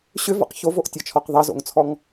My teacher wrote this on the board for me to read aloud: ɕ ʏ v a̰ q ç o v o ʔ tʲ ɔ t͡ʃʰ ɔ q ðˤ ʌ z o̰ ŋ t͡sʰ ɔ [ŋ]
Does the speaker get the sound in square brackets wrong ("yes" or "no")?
no